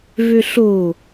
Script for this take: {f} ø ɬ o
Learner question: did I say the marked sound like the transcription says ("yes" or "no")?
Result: no